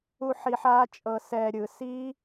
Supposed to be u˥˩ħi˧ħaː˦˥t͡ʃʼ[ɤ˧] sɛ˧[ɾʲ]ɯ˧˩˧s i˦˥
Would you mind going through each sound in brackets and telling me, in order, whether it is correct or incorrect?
correct, correct

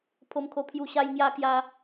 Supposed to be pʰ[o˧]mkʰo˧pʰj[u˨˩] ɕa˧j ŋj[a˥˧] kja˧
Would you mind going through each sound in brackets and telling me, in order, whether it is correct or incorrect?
correct, incorrect, incorrect

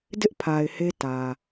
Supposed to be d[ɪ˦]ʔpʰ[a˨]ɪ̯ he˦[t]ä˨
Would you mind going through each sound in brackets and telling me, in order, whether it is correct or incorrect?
correct, correct, correct

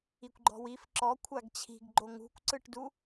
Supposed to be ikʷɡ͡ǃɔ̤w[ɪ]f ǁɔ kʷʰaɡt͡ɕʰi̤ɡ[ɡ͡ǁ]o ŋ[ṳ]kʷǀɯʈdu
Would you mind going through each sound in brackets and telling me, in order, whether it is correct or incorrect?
incorrect, incorrect, correct

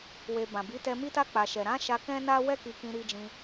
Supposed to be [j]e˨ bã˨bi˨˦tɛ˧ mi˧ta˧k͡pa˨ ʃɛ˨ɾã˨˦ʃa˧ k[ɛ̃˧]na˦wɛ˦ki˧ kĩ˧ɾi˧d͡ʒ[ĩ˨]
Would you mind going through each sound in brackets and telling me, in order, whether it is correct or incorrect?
incorrect, incorrect, incorrect

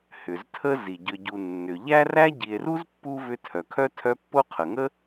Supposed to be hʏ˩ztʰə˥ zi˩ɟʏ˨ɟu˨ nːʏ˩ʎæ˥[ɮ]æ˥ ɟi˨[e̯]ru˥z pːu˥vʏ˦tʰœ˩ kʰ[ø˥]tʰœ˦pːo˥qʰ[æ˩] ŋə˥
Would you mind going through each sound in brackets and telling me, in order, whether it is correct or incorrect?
incorrect, correct, incorrect, incorrect

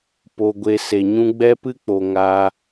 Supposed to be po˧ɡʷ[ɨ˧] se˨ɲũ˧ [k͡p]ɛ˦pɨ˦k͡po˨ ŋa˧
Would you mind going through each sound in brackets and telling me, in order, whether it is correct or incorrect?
incorrect, incorrect

